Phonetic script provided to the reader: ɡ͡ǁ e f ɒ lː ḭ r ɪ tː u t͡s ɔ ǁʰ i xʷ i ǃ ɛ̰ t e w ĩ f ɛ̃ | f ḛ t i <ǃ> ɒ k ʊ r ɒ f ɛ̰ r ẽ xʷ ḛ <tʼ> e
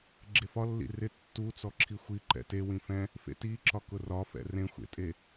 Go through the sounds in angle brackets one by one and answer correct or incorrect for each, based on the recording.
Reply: incorrect, correct

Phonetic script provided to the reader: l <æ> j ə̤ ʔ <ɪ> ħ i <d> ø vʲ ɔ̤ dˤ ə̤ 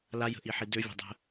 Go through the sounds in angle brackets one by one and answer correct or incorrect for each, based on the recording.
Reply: incorrect, incorrect, correct

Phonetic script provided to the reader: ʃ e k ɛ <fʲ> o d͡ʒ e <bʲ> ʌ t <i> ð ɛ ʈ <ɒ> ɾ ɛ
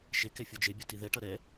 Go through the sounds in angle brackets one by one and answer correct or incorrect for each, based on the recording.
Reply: correct, correct, correct, incorrect

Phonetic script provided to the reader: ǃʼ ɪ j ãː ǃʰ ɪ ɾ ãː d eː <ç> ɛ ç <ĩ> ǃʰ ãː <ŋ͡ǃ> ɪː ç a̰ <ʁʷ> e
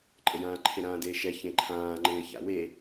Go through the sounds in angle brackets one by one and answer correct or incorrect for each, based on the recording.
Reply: incorrect, incorrect, correct, incorrect

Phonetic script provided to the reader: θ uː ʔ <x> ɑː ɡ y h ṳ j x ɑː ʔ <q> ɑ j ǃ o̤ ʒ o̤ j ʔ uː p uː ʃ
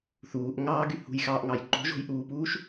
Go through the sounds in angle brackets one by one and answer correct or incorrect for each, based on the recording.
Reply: incorrect, incorrect

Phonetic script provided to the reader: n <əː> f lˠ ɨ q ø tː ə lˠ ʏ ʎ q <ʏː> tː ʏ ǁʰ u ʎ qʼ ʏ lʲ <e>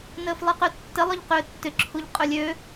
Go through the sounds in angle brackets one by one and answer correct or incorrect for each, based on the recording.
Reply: correct, correct, incorrect

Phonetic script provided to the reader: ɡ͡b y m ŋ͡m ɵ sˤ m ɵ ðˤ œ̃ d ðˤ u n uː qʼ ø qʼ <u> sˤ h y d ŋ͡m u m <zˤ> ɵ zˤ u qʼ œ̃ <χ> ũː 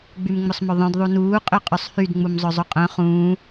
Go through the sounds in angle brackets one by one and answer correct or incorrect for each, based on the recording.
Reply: incorrect, correct, correct

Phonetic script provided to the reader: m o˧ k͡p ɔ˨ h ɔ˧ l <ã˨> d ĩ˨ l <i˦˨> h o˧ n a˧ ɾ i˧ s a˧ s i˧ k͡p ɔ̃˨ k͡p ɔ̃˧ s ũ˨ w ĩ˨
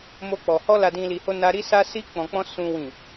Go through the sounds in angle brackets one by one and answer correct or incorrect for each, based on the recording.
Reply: incorrect, incorrect

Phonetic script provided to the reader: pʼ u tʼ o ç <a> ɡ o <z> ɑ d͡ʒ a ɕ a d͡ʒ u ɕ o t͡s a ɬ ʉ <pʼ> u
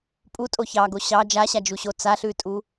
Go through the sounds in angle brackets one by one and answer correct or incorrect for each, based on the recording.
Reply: incorrect, incorrect, incorrect

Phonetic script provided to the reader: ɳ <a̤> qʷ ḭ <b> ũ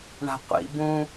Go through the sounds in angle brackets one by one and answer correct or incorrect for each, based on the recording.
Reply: correct, correct

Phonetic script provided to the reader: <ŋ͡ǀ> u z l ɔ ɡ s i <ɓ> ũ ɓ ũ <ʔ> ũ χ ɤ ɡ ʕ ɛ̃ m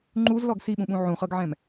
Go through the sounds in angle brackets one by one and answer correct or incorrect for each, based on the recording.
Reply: incorrect, correct, incorrect

